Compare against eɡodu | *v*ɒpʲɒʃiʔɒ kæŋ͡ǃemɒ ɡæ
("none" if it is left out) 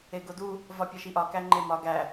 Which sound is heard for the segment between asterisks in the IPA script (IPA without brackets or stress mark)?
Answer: v